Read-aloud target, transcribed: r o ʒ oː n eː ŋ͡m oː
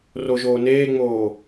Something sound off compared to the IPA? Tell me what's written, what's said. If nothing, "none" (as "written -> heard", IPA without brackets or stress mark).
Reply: none